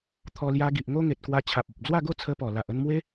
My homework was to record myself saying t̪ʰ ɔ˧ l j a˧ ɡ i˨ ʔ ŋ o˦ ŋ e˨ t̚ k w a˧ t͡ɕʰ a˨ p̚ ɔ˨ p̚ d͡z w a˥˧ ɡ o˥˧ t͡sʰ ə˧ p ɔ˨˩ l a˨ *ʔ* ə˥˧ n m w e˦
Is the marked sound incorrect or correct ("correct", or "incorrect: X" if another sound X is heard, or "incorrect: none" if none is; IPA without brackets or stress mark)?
correct